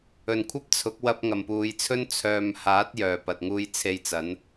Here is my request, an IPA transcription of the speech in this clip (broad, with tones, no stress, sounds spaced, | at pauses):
ɵ˨˩ n kʷʰ ɐ˥ p̚ t͡sʰ ʊ˨˥ k̚ w ɐ˧ p̚ ŋ ɐ˨˩ m p uː˨ j t͡sʰ ɵ˥ n t͡sʰ œː˨ m h aː˨˥ t̚ j œː˨˩ p ɐ˨ t̚ ŋ uː˧ j t͡sʰ e˧ j t͡s ɐ˨˥ n